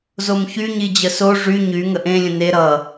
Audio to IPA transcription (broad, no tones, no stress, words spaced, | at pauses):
zomçy ɲid͡ʑəso ʐy ɲy ŋəʔẽ lʲə̃ne ɾʌ